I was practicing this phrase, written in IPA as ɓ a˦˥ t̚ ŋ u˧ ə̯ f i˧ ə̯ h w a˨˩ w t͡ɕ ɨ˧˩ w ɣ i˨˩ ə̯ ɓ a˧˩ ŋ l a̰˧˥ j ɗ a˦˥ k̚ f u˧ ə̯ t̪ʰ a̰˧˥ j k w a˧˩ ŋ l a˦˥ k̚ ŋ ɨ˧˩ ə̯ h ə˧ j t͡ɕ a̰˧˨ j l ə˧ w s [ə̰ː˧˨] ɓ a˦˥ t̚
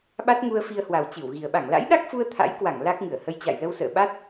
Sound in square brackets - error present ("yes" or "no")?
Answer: no